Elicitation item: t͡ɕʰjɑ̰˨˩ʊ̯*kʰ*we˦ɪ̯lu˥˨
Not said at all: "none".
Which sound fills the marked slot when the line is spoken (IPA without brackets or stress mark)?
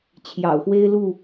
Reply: x